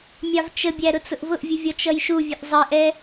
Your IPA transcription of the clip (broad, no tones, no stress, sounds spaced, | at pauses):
mʲ ɑ v t͡ʃ ə bʲ æ ɾ ʊ t͡s ʊ ʔ v ʊ ʔ vʲ u vʲ ɔ t͡ʃ ʌ j ʃ u vʲ ə ʔ zˤ ɪ ʔ ɛ